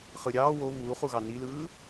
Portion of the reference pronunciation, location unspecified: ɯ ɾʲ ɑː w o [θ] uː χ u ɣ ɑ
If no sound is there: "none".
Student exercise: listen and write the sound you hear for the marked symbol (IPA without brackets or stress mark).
β